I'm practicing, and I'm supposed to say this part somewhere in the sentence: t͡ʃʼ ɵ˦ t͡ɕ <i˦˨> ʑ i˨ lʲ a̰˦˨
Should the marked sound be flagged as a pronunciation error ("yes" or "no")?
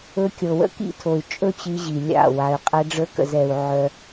yes